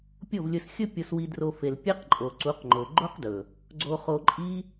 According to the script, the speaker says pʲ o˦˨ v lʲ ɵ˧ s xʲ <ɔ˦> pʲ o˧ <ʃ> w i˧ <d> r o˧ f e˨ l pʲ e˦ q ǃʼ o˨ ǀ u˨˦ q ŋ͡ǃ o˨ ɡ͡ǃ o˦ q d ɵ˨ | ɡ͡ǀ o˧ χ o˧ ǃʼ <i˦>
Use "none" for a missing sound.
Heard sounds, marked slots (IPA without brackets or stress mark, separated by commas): ɵ˦, s, d, i˦